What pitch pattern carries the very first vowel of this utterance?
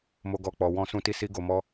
high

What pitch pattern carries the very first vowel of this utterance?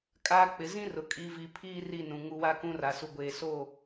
low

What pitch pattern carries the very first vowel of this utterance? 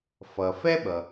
low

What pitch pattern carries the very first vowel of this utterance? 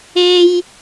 high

